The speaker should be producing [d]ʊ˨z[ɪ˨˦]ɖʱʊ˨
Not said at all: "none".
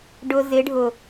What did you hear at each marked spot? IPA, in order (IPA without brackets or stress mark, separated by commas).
ɖ, ɪ˨˦